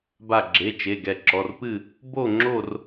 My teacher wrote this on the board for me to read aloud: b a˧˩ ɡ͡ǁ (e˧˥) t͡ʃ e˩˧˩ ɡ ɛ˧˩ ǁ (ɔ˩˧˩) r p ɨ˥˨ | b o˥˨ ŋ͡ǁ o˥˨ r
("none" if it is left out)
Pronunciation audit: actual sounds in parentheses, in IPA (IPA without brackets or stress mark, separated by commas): e˩˧˩, ɔ˩˧˩